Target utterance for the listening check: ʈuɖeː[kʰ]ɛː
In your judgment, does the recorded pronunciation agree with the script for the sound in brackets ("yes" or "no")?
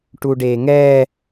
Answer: no